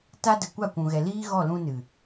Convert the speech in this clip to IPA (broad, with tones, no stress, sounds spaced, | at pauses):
t a˦ d ə˨ kʷ a˦˨ kʷ ũ˨ ɣ ɛ˨ l iː˦ ɣ ɔ˦˨ l ũ˧ n ɨ˨